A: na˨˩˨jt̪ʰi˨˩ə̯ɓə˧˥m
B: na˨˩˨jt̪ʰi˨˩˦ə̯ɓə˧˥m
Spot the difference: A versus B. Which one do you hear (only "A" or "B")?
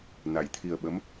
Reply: A